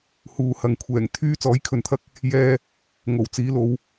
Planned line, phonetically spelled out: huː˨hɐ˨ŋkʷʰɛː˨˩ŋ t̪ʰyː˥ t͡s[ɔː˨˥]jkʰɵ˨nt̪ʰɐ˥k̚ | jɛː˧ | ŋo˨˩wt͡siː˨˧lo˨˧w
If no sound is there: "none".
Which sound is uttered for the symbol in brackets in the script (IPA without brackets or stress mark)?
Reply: ɔː˨˥